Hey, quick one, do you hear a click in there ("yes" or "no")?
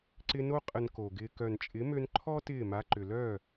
yes